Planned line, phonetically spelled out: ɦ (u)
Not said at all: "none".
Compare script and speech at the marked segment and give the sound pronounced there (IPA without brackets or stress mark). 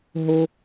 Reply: o